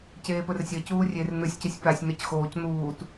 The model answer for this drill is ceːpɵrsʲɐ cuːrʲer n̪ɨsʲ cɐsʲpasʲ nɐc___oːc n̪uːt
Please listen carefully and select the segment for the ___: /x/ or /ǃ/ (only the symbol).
x